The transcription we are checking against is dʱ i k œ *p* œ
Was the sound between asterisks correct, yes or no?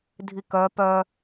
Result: yes